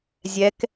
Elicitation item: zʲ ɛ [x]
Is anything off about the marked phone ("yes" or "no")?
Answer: yes